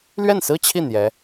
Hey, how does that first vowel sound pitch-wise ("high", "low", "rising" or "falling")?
falling